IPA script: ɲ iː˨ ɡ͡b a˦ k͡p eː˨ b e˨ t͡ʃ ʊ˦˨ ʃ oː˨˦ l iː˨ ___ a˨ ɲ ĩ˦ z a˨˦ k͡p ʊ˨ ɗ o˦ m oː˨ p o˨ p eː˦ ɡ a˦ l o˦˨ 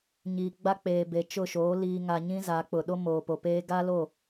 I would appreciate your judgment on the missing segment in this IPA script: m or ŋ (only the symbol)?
ŋ